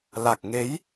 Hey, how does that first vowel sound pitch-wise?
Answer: low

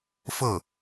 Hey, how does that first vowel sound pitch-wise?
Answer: falling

